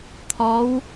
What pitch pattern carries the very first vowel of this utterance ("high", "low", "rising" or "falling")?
rising